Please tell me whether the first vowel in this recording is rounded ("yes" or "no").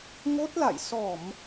yes